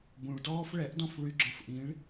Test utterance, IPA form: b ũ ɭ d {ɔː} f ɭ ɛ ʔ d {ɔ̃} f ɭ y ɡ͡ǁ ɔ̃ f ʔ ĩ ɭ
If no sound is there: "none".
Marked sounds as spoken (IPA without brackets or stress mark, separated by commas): ɔː, ɔ̃